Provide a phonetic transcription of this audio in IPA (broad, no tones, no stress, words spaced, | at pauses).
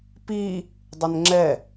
pi | dˤənŋ͡ǁɛ